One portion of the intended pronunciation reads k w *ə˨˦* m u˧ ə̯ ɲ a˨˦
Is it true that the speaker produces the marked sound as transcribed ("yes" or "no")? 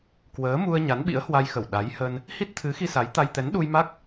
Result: no